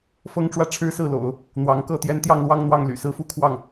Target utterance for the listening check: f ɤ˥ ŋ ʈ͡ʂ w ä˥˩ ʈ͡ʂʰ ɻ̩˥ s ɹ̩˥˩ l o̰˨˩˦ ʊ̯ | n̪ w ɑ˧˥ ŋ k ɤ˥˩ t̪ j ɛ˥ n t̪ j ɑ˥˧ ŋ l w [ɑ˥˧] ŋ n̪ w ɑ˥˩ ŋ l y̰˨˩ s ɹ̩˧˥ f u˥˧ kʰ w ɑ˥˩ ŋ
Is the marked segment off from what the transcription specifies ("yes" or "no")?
no